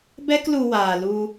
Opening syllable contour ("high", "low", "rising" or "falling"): high